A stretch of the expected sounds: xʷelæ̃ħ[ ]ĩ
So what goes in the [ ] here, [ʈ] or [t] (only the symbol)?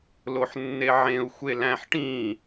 ʈ